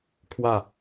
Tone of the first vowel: falling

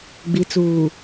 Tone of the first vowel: low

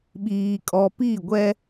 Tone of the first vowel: high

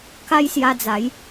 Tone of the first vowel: high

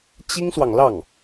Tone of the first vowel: high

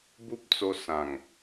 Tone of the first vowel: high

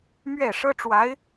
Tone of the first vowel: falling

